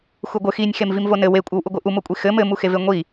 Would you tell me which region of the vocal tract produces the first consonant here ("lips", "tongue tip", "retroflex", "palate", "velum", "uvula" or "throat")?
velum